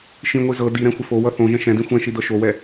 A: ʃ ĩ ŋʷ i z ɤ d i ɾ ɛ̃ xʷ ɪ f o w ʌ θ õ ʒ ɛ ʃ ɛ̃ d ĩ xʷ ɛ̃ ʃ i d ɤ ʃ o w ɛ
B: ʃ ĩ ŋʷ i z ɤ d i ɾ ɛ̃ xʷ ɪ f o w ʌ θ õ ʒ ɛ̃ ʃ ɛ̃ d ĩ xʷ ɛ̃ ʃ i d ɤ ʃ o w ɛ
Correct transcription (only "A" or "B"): B